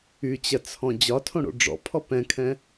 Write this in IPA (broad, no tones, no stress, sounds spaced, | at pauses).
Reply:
y t͡ɕ ɐ t͡sʰ ɔ̃ d͡ʑ ɒ tʰ õ ɽ o̰ ɖ͡ʐ ɔ̰ pʰ ɔ p ɛ̃ kʰ ɛ̃